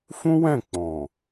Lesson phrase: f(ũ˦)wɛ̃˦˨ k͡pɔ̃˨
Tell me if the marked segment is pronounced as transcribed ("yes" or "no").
yes